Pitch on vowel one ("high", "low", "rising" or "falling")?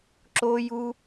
high